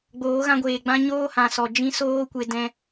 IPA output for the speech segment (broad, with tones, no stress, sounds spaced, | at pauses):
ɡ͡b oː˨˦ ɣ ã˧ ɡʷ eː˨ ɡ͡b ã˧ ɲ oː˦ h ã˨ s ɔ˨ d͡ʒ ĩ˧ s oː˧ kʷ e˨ d ɛ̃˧